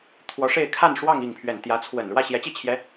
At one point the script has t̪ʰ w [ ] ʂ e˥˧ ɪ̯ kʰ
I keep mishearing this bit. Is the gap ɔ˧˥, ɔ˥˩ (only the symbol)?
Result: ɔ˧˥